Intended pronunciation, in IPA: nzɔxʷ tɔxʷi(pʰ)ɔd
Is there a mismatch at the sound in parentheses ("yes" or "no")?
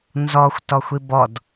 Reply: yes